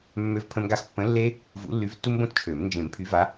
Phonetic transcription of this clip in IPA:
mːø˦vpʰə̃˦mɡa˦x pːə̃˨˦ lːe˦ | vṵ˨˦lːy˨˦vtːu˦mbõ˦t t͡ʃʰø˨˩˦m nd͡ʒẽ˨˩˦mpʰy˨˦va˨˦

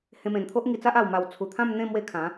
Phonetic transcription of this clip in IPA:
hẽ˧mẽ˨˩nt̪ʰo˦ʔ ŋi˧t͡sa˦ʔ a˨˩wma˨˩w t͡sʰu˨˩ t̪ʰã˥˧mn̪ẽ˥˧ mwe˥˧kʰã˨˦

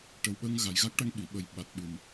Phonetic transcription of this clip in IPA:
ʈə˨˩wɓə˧ŋ ɣa˨˩jɣa˦˥k̚ ʈa˧ŋɓi˨˩˨ɓə˨˩j ɓa˨˩t̚ɓɨ˨˩m

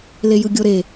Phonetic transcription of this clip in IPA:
lejɯɡʲoɾe

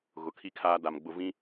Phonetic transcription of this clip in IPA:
ɣʊ˨˦kʰi˦kʰaː˦da˨m ɡ͡bʊ˨vĩ˦

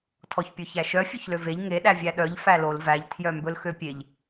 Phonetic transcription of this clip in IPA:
tʰɔçpʲɵçæʃœ fʲøçløveʎ ŋe ɗævʲæɗœʎ fælol væʎ tʰjœmbɵlxøpʲeʎ

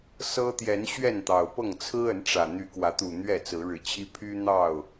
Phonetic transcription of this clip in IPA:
sɤ˦ t̪jɛ˨˦n ɕɥɛ˥˨nt̪ɑ˨˩ʊ̯pɤ˥˨ŋ t͡sʰɹ̩˦ə˨˦n ʈ͡ʂä˨˩ n̪y˨˦kwä˨˦t̪u˨˩ n̪ɥɛ˥˨t͡sɹ̩˨˦ɻɻ̩˨˦t͡ɕʰi˦ pʰy˦ n̪ɑ˥˨ʊ̯

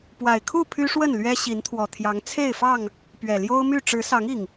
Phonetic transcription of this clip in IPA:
pwa˨˩ɪ̯kʰu˥˨ pʰy˦ʂwə˥˨nlɥɛ˦ ɕi˨˦nt̪ʰwɔ˨˩t̪ʰjɑ˨˦ŋ t͡sʰe˥˨ɪ̯fɑ˥˨ŋ | pɥɛ˨˩ljo˦ʊ̯my˥˨ ʈ͡ʂɻ̩˨˦sɑ˨˦ŋ i˨˩ŋ

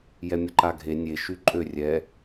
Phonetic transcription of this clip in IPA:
jɛmʲəǃaɡʱe nʲe ʃyǃʼø rʲɛ

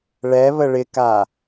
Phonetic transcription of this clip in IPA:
ɭɛβə ɭɪka

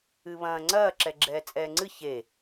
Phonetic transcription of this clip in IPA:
ɨβɐ̃ː ŋ͡ǀɐː ǁɛɡ͡ǁɛːt͡sʼɛːŋ͡ǀɨ çe

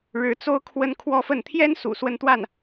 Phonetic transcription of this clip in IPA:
ɻɻ̩˧˥t͡so˥ʊ̯ kʰwə˥n kʰwɔ˥fə˥˩n t̪ʰjɛ˥nsṵ˨˩ swə˥˧nt̪wa˥˩n

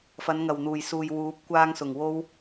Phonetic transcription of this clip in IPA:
fɐ˨˧nŋɐ˨˩wn̪uː˨˩jsuː˨j wuː˨˥p̚ kʷaː˧ŋsʊ˨˩ŋ wo˥w

